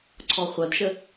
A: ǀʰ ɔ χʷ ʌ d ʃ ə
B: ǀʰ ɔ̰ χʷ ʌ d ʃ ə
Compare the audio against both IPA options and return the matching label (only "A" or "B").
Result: A